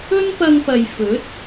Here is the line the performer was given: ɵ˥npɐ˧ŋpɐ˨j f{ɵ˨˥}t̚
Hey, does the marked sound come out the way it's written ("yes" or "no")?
yes